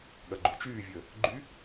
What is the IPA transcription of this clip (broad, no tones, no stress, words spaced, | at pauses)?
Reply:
ɠɐɡ͡ǃut͡ʃyːvʲəː | ɡ͡ǃy